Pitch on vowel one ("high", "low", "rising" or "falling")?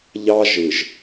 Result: high